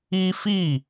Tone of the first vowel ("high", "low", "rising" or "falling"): high